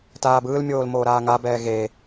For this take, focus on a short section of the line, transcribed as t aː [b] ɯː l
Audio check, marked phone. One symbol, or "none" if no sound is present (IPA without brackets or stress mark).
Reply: b